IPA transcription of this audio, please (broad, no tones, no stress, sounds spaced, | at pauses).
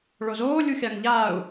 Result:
ɭ o z oː lʲ u xʲ a ŋ ʎ aː u̯